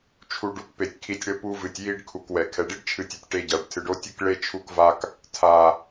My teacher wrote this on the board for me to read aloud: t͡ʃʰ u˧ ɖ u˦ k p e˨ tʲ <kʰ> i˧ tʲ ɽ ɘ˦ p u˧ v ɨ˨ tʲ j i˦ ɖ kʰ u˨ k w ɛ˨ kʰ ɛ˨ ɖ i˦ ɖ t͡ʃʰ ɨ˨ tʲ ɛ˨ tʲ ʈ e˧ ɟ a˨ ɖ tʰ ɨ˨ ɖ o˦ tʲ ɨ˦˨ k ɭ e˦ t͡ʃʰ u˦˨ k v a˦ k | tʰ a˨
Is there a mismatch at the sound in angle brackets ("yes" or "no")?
no